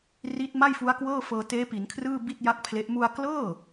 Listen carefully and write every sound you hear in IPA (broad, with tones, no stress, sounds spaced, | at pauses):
r i˦˥ t̚ m a˥˩ j f u˦˥ a̯ k w ɤː˥˩ f ɤː˧ t eː˦˥ p i˩˦ n kʰ r ɯː˥˩ b i˥˩ t̚ j a˥˩ k̚ pʰ l e˦˥ ʔ m u˧ a̯ k l ɤː˥˩